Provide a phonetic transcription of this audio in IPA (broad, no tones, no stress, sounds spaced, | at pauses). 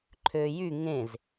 ǃʰ ø j y ŋ ẽ z